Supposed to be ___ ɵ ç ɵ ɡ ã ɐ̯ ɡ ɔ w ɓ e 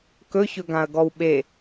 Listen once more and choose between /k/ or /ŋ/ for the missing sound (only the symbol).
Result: k